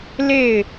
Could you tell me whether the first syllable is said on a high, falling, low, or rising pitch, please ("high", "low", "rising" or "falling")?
falling